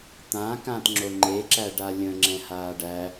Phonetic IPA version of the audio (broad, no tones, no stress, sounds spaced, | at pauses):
t̪ ã k ã t ŋ͡ǁ o ŋ͡ǃ e ǁ æ ɖ a lʲ ə̃ ŋ͡ǁ ɛ̃ h aː ɖ æ